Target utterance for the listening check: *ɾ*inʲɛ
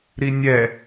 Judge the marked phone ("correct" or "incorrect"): correct